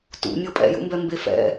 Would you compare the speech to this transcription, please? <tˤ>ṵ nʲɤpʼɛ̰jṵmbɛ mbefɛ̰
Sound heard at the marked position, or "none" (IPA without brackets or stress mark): t